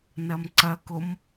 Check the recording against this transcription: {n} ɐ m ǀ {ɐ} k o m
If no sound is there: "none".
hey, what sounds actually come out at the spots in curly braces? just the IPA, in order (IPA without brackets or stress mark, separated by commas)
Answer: n, ɐ